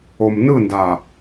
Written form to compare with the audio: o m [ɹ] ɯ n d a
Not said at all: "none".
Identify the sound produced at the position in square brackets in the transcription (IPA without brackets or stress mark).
n